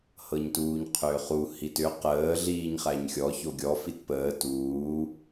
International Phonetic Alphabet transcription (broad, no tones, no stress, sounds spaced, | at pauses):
h ɤ ɲ t uː ɲ qʰ ʏː χ u h i t ʏ q əː ɮ iː ɲ χ æ ɲ xʲ ɔ ç o ɡʲ ɔ f i t p əː t uː